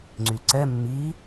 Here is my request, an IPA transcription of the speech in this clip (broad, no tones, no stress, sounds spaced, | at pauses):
ŋ͡ǀ y ǀ ɛ mː i